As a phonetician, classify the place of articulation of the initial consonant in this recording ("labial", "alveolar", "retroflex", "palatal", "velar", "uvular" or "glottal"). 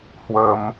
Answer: glottal